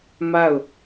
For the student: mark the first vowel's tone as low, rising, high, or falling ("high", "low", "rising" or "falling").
falling